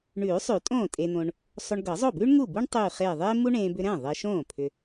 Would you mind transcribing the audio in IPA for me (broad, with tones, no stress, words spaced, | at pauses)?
ɳʉː˨˩˦sˤʉː˨˩˦ tʼõː˥˩tʼeː˧n̪õ˧ɳ | sˤo˧ɳɡɤ˨˩˦zˤo˥˩bʉː˥ɳ ŋu˥˩bu˥ɳ tˤʉː˧˩χeː˧˩ ðˤeː˥mu˥ɳẽː˧ bʏ˧ɾɛ̃˥˩ ðˤeː˧ʃõː˥˩ pʰʏ˧